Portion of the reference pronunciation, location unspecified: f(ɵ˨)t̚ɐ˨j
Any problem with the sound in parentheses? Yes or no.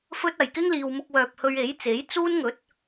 yes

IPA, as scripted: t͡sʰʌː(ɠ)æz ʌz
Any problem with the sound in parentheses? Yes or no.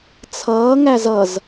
yes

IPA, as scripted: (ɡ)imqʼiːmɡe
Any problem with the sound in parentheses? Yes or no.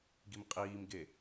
no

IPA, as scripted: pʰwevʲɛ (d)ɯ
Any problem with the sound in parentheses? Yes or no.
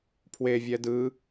no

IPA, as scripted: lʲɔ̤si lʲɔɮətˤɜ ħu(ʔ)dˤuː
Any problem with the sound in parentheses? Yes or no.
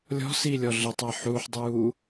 yes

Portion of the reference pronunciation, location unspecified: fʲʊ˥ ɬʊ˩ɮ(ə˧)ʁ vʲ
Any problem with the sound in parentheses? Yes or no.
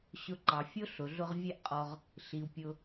yes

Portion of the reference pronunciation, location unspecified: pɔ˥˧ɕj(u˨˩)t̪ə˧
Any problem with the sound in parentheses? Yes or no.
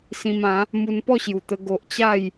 no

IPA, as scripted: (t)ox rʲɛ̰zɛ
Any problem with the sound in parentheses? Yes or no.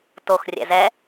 no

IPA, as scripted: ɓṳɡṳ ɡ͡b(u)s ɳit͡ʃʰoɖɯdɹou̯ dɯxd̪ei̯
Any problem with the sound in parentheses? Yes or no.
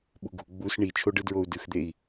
no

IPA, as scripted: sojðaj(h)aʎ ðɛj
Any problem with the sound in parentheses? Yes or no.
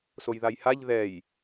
no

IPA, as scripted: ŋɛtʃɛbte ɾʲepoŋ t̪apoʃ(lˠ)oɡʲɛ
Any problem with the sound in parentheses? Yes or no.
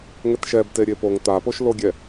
yes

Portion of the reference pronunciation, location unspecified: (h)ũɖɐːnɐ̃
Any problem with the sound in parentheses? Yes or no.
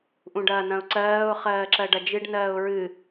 yes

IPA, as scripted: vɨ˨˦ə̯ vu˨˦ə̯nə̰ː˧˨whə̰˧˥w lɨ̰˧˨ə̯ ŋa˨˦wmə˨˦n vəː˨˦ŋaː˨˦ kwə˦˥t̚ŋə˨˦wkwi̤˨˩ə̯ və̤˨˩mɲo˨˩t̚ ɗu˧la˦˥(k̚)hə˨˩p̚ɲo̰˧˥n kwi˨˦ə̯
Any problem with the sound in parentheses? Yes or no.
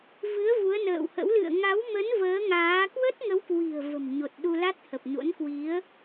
yes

